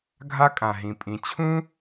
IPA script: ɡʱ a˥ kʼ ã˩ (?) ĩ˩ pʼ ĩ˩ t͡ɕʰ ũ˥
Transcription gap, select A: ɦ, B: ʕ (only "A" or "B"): A